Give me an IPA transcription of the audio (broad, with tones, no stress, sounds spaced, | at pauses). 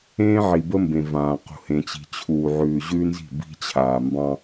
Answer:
ẽː˦ ʕ i˨ b ə˦ m b ẽ˨ v ãː˨ q ṳ˨ h ẽ˨ t͡ɕ i̤˨ t͡ɕʰ uː˨ ʕ ʉː˨ ʑ ʉ˦ n z i̤˦˨ b i̤˦ t͡ɕʰ aː˨ m b ɑ̃˦